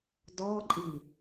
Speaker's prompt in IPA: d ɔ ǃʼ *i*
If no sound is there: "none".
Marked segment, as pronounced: i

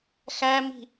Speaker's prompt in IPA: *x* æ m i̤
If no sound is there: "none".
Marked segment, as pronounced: x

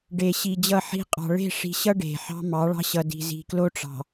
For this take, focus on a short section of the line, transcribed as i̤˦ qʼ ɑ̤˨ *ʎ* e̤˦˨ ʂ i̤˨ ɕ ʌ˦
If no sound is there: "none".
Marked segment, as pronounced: ɭ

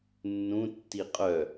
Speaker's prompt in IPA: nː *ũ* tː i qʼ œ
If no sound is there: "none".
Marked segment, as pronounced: ũ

